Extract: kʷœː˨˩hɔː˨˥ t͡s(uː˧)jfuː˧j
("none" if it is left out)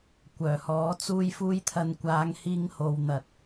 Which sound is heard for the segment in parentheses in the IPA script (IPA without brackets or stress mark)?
uː˧